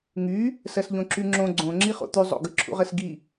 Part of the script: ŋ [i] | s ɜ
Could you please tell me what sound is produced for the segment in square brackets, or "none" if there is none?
y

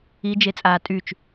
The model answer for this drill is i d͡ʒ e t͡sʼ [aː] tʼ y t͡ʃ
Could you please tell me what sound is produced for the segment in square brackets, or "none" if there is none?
aː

